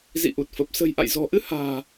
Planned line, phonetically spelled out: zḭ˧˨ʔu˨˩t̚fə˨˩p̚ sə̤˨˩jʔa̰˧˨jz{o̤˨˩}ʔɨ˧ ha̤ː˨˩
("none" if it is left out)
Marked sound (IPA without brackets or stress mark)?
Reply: ɔ̤˨˩